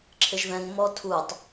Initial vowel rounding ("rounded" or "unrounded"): unrounded